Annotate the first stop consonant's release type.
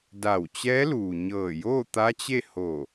plain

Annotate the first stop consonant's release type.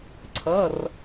click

